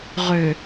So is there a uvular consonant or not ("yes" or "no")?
yes